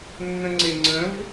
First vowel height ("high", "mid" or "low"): mid